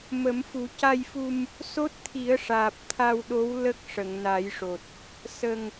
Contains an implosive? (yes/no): yes